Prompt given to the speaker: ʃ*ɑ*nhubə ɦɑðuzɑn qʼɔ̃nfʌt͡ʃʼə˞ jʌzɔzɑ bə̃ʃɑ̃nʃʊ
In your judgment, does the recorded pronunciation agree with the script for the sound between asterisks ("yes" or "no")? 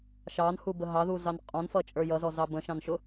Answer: yes